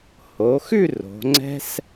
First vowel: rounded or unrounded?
rounded